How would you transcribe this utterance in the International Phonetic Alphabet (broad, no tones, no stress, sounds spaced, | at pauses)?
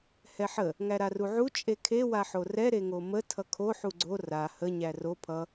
h ɛ ħ ə | ŋ æ ɾ a r u ʕ u t͡ʃʼ e kʰ e w a ħ o r ɛ ɾ e ŋ o m ə tʰ ʌ kʰ o ħ u ɡ͡ǀ o r a h ə ɲ æ r o pʰ ʌ